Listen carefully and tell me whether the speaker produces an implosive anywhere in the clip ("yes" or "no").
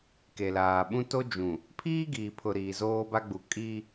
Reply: yes